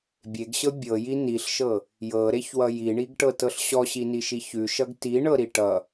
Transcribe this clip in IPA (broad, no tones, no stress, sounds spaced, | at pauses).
bʲ e ɡ ɕ ɤ bʲ ɤ j i n i ɬ ʃ ɤ | j ɤ ɾ e ç w ʌ j i ɳ i ɡ ʈ ɤ t ɤ ɬ ɕ ɔ ɕ i n i ʃ i ç ʉ ʃ ʌ ɡ t i ɳ ɤ ɾ i ʈ ʌ